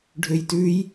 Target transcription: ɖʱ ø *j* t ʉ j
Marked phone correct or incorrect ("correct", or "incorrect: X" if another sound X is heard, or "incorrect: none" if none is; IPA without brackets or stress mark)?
correct